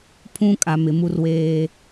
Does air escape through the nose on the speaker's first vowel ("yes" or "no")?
yes